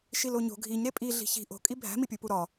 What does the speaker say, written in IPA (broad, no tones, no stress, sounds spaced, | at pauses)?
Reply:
ʃ i l o ɲ o̤ ɡʱ i ɲ ɾ e pʼ i ɮ i̤ ç i̤ ʔ o̤ kʼ i bʱ æ̤ m i pʲ u p u ɾ ɒ